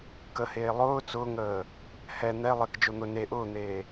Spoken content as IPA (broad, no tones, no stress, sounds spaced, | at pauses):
k ə h eː lˠ ʊː t͡s ʊː ŋ əː | h ɛ n̪ ɛ lˠ e k d͡ʒ o n̪ ʊ n e ʔ ʊː n̪ eː